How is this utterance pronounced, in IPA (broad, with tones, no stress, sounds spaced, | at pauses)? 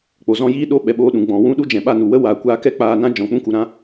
k͡p o˨ z ɔ̃˧ j iː˦ ɗ o˧ ɓ ɛ˨ ɓ oː˧ ɗ ũ˨ ɡ͡b ɔ̃˨ w ũ˦ ɗ u˦ d͡ʒ ɛ̃˨ ɓ a˦˨ n u˨ w ə˦ w aː˨ kʷ aː˧ k ɛ˦ k͡p aː˧ n ã˦ d͡ʒ ɔ̃˨ k͡p ũ˦ k u˨ ɾ ã˦